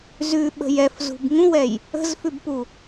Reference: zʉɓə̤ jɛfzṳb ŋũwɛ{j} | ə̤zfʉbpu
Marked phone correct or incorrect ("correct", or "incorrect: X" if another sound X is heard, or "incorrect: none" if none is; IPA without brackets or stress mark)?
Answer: correct